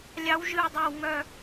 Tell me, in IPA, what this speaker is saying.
lʲ ɑ˧˥ w ʒ ɨ˦˨ w dˤ a˦˨ w ŋ œ˦˨

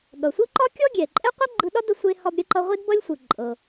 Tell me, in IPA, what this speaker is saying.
ɠ ʌ˩ sʷ ɯ˥ ǃ ɒ˥ kʲ ɔ˥ ɡʲ ɛ˩ ǃʼ ɛ˥ qʷ i˥ ɡ͡ǃ ɯ˧ ɗ ɒ˥ d ə˧ sʷ e˧ h ɒ˧ b ɾʲ ə˧ ǃ ʌ˧ ʁʷ i˥ d b ʌ˥ lʲ sʷ ɯ˩ ǃʼ ɤ˩

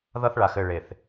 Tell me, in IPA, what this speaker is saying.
ð ʌ˦ θ ɭ a˨ x ɘ˦˨ ɭ e˨ θ

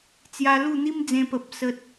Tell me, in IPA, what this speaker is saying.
t͡s j a˧ l u˥˧ n̪ i˦ m d͡z ẽ˧ p ə˨ p̚ s ə˦ t̚

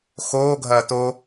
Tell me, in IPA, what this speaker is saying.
x oː ɡʱ ɐː t o

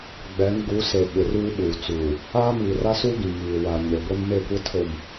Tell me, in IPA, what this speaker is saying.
ɡ͡b ɛ˨˦ ŋ ɡ u˨˦ s e˨ ɓ ɪ˨ r uː˦ ɓ uː˨ t͡s uː˨ | aː˦ m iː˨ r a˦ s u˦ ɡ ĩ˨ ŋ iː˨ w a˨ ɲ e˨ ɡʷ e˦ n m e˦˨ kʷ e˦ tʰ o˨ m

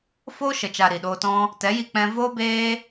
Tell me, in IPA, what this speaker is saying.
f oː˦ ʃ ə˨ t͡ʃ a˨ ɾ i˨ ɗ oː˧ t ɔ̃˦ | t ɛ˨˦ j i˧ k͡p ɛ̃˧ v oː˦ b eː˦

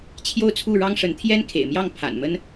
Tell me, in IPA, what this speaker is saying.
t͡ɕʰ j o˥˧ ʊ̯ t͡sʰ u˥˩ ɻ ɑ˥ ŋ ʂ ə˧˥ n t̪ʰ j ɛ˥ n kʰ ḛ˨˩ ɪ̯ m j ɑ˥˩ ŋ pʰ a̰˨˩ n m ə˥ n

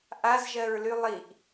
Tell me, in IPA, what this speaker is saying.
ʔ a z ʒ ɜ ɹ l y lˠ i ʔ

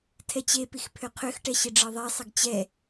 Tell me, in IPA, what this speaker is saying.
tʰ ɛ t͡ɕ e p i x pʰ ø qʰ ø x ʈ ɛ ɕ ɪ ɖ͡ʐ ɤ ðˤ e sˤ ɪ ɡ t͡ɕ ɛ

